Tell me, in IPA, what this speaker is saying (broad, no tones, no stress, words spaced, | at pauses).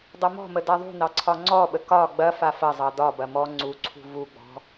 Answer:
dˤɐmɔ̤mə daðˤṳnɑ ǀʰɒŋ͡ǀɔɓə kɒ ɡ͡bɐfa fɐzˤɑ dɒbɐ mɔ ŋ͡ǀuǀʰṳ vuɡ͡bɔ̤